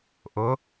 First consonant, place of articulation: glottal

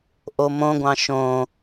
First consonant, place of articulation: glottal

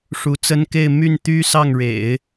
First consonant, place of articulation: retroflex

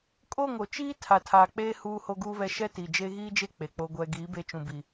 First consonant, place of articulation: velar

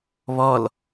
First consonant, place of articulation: labial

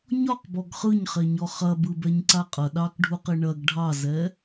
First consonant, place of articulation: palatal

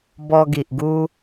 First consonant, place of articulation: labial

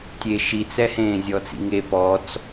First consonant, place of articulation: alveolar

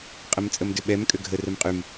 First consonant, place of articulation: uvular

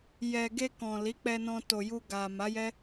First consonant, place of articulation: palatal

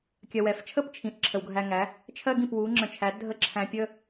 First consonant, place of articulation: velar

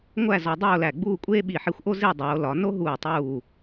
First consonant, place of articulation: velar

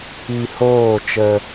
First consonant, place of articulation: glottal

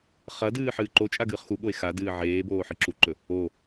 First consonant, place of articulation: uvular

